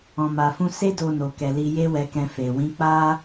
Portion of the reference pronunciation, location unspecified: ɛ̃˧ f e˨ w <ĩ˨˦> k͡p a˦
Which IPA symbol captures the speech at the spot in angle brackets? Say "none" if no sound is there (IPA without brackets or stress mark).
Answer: ĩ˨˦